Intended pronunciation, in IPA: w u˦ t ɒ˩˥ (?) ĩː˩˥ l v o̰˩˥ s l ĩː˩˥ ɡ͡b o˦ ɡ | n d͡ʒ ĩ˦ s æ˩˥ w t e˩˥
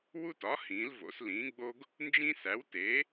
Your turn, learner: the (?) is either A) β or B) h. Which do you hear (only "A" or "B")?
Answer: B